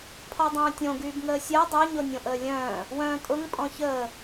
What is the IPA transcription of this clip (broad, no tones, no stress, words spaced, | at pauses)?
pʰɔdˤœ̃ːtʲõ ɡyːbŋəːsʲɜ dˤœ ɲonʲõʔəːlʲœ̃ː | wœ̃ːtʼʊŋ pʼɔ̃çəː